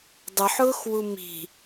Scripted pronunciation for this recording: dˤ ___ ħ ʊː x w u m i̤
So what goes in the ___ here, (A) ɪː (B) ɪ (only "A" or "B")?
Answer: B